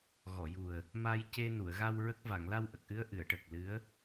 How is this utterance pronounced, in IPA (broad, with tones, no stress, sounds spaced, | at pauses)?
ɣ ɔ˨˩˨ j u˨˩ ə̯ | m a˧ j c e˧ n u˨˩˨ ə̯ ɣ a˧ w ɹ ə˦˥ k̚ v a˨˩˨ ŋ l a˧ w ʔ ə˨˩ k̚ ʔ ɨ˧˥ ə̯ ʔ ɨ˨˩˨ ə̯ ʈ ə˨˩ k̚ l ɨ˧˥ ə̯